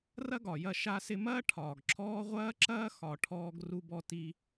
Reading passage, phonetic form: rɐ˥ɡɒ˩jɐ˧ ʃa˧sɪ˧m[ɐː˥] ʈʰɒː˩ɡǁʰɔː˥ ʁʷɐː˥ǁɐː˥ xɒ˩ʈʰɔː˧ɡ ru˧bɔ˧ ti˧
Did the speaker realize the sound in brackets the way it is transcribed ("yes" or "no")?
yes